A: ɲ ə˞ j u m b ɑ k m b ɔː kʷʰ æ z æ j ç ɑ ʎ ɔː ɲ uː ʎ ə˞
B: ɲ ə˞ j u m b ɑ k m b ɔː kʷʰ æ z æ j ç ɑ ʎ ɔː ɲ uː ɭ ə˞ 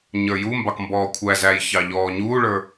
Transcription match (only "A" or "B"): B